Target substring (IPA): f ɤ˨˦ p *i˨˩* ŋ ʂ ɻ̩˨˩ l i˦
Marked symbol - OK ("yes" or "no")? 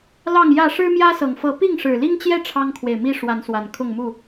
no